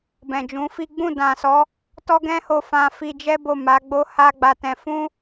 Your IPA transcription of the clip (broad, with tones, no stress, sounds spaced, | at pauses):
b ɛ̃˨ d͡ʒ ũ˨˦ f i˦ ɡ͡b ũ˦˨ d ã˨ s ɔ˨˦ | t ɔ˦ ɡ ɛ̃˦ h o˧ f ã˧ f i˧ d͡ʒ ɛ˦ b o˦˨ m a˨˦ ɡ͡b o˦ h a˦ ɡ͡b a˧ t ɛ̃˧ f ũ˦